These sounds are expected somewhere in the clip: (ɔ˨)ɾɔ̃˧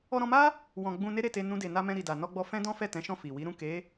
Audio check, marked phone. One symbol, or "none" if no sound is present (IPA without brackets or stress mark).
ɔ˧